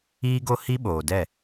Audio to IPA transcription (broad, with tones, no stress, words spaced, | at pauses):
iː˦ɡo˦ hi˦ɓoː˨dɛ˦˨